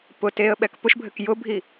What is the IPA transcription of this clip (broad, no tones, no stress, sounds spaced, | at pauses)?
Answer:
p ʊ t e ə̯ ɓ ɛ k p ʊ ʃ bʱ ɘ k j ʊ bʱ i